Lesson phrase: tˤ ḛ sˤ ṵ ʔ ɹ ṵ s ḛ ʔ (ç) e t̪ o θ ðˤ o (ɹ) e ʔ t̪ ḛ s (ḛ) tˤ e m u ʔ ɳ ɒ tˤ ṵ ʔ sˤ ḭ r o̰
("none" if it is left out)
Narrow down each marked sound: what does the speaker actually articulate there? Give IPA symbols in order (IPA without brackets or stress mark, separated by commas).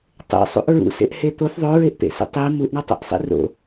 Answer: h, ɹ, ḭ